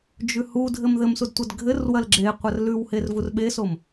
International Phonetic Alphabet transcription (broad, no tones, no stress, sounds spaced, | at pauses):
d͡ʒ ʉ h u dʱ ɘ m ð ɘ m s u d tʷ ɐ d ɡʱ ɘ r w ɐ l ɡ͡ǁ e qʷ ɐ r l ʉ w h e r v u r ɓ e s o m